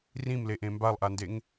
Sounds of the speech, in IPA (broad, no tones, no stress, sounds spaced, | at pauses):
r ĩ m l e ʔ ẽ m b a lˠ ʔ a n d e ŋ